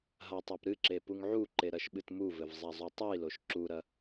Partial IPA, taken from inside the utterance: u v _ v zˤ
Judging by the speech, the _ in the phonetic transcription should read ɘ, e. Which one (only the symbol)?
ɘ